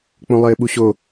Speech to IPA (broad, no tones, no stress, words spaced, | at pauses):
k͡põlˠɘːɓuɕo